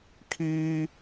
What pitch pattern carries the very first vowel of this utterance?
high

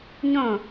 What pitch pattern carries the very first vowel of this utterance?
falling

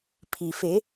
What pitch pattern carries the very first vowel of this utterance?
low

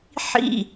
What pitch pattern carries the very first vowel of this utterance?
falling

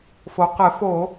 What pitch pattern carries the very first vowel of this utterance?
low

